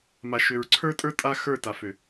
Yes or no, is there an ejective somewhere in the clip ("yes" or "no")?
yes